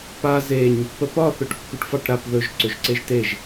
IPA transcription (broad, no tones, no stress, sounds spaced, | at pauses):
p a z e ɲ | p ə p ɒ θ ø ʈ kː u ʈ f ɑ ʈ ɾ a p ð ɵ ʒ ǀ ø ʒ ǀ e ʒ t e ʒ